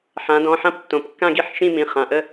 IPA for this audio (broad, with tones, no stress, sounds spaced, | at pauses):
ħ ã˩˧ d ɔ̃˩˧˩ ħ ã˥˧ p tː õ˩˧ p kː ã˥˧ ɡ i˥˧ ħ ʃ ĩ˥˧ m ĩ˩˧˩ χ ã˩˧˩ ʔ ə˥˧